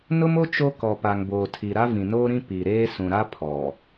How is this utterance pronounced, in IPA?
n ʊ˦ m o˦ t͡ʃ o˦ k ɔ˨ p a˨ ŋ b oː˨ tʰ i˨ ɾ a˦ v ĩ˨ n oː˦ ɾ ĩ˦ p i˨ ɾ eː˦ s ũ˨ ɾ a˦ pʰ ɔ˨

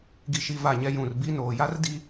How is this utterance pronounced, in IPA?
ɡ i˨ ʃ i˨ v a˦˨ ɲ ɛ˦ j ũ˨ r b i˦ n oː˨ j a˦ r d i˦

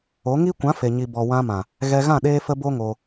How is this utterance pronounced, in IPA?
o˨˦ ŋ i˦ kʷ ã˨˦ f e˨ ɲ i˨ b ɔ˨ w ã˧ m ã˨ | ɣ ɛ˧ ɣ ã˦˨ ɗ eː˦ f ə˦ b o˦ ŋ o˧

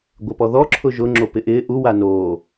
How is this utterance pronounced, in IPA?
ɡʷ ɪ p ɔ ð ɔ ǁʰ ʊ ʒ ʊ ŋ͡ǁ o p ɪ ʔ ɪː ʔ u w a n oː

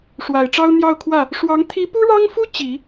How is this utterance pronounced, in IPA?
ʂ w a˨˩ ɪ̯ ʈ͡ʂ ɑ˥ ʊ̯ n̪ j ɑ˥˧ ʊ̯ kʰ w ä˥˩ | ʂ w ɑ˧˥ ŋ t̪ʰ i˧˥ p u˥ ɻ ɑ˥ ŋ f u˥ t͡ɕ i˨˩˦

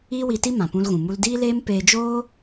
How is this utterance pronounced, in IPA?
iː˦ w i˧ t i˦ m ã˨ p ũ˧ l ɣ ũ˨ m u˧ l d iː˦ l eː˦ m p eː˧ d͡ʒ oː˦

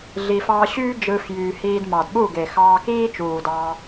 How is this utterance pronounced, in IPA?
ɮ i˨ f ɑː˧ ɕ yː˦ d͡ʒ ɯː˧ f j yː˨ h iː˧ d m ɑ˨ d ɓ u˦˨ ɡ e˨ x ɑː˧ k iː˦ t͡ʃ uː˨ d ɑː˧

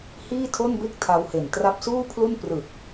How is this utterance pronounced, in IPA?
h iː˥˩ tʰ o˥˩ n b e˥˩ k̚ tʰ a˧ w h e˨˩ n t r a˦˥ p̚ s uː˥˩ pʰ l u˥˩ n p r ɯ˨˩ k̚

